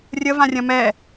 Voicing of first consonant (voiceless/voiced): voiced